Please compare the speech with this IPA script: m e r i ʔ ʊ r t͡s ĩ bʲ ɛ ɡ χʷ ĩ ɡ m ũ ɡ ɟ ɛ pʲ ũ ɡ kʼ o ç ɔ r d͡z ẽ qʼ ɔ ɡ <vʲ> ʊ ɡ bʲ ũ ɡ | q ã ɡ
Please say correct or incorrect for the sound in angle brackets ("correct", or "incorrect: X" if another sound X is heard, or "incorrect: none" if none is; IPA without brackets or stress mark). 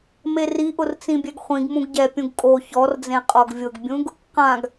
correct